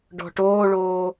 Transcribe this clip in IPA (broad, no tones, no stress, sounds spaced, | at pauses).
ɖ ɔ̤ ʈ oː ɭ oː